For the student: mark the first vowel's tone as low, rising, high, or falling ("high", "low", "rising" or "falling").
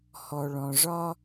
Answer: low